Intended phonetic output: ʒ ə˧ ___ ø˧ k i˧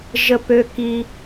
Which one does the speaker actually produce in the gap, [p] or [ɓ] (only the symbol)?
p